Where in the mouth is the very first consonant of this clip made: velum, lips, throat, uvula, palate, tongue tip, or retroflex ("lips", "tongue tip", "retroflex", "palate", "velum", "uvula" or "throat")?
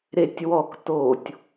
tongue tip